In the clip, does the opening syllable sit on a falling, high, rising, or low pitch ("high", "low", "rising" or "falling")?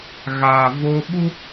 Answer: low